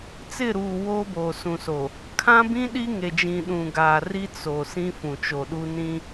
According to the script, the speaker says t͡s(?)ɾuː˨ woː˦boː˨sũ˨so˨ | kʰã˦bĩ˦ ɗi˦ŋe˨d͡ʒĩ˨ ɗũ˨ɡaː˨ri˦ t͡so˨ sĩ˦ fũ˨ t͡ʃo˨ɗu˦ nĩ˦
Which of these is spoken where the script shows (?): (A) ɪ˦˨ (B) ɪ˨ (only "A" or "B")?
A